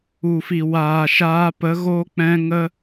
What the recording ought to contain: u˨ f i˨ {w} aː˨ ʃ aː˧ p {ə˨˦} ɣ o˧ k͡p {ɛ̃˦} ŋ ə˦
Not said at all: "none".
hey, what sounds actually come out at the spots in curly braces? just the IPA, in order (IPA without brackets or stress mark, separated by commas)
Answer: w, ə˨˦, ɛ̃˧